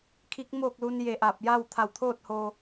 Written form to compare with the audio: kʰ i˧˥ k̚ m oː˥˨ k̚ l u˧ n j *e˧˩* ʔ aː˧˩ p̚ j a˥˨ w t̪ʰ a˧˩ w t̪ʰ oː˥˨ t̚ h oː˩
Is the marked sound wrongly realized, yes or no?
no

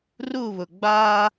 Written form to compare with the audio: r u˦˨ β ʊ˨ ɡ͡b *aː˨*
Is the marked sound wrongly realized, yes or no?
yes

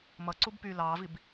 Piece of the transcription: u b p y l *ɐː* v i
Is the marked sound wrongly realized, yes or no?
yes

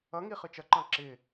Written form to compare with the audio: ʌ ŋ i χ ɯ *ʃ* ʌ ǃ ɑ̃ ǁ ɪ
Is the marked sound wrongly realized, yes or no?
yes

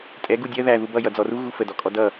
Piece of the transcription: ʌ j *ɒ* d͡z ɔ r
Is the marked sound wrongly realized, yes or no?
yes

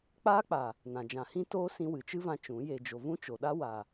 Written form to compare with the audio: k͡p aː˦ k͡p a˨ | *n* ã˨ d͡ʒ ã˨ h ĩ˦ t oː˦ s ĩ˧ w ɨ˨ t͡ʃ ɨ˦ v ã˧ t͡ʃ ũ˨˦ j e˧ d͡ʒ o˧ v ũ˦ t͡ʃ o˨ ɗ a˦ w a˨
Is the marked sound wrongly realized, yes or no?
no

